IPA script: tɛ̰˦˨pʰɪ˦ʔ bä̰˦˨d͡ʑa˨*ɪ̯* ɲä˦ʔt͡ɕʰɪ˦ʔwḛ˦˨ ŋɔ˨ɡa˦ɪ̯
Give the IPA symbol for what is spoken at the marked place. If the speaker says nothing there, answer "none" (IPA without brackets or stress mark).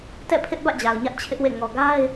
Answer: ʊ̯